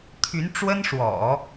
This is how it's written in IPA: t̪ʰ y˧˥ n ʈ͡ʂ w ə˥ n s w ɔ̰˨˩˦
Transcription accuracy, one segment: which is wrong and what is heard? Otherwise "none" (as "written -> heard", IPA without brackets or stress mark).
s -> ʂ